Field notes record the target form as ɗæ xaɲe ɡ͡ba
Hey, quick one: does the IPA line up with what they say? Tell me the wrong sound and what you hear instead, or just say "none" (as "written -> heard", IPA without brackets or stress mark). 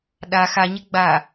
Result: æ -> a